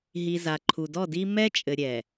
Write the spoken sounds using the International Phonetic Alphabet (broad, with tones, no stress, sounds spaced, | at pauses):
ɦ i˨ z a˨ ǃʰ u˨ d ɔ˦˨ d i˦ m ɛ˦ t͡ʃʼ ɘ˨ ɾʲ ɛ˨